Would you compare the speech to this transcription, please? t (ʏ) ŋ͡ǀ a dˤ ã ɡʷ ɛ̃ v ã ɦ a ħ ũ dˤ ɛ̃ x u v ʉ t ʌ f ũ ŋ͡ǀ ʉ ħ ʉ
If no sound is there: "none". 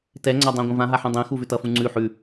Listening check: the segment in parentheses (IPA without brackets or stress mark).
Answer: ɛ